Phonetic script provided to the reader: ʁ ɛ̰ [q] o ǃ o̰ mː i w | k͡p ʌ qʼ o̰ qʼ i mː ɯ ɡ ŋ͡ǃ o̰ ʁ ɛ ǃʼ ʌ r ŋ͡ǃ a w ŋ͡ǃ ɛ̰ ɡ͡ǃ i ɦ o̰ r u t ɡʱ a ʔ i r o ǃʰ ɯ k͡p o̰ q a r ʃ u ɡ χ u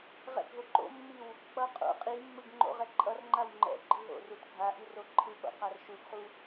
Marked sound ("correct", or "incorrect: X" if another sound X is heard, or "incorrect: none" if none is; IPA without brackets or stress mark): incorrect: ɡʱ